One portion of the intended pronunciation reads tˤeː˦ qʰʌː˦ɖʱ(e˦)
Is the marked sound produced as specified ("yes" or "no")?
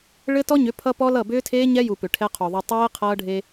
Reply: yes